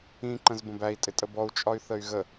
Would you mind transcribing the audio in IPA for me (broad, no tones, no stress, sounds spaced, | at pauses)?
ĩ ǃ ə̃ z b ə̃ b æ i̯ tʼ ɪ tʼ ə b ɔ u̯ t͡ʃʼ ɒ y̯ θ ə y̯ ɣ ə